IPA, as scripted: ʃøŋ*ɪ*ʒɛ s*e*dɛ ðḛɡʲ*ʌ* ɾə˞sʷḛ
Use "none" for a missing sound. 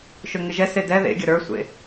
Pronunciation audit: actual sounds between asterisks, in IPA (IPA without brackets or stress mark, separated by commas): ɪ, e, ʌ